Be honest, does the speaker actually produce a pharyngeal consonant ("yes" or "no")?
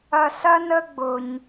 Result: no